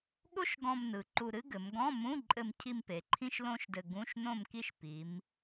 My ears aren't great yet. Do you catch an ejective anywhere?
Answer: yes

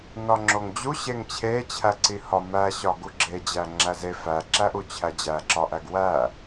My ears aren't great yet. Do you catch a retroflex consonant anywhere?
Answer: no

